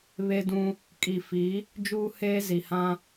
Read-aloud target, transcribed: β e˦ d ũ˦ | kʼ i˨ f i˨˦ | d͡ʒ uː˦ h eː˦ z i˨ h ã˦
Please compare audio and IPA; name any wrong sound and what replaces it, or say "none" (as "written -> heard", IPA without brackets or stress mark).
none